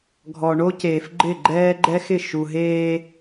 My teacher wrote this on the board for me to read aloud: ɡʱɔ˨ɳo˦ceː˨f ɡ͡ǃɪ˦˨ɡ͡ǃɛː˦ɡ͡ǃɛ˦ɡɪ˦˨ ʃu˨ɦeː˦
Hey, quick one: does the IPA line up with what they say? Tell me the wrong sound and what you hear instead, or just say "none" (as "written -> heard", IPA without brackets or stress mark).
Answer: ɡ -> x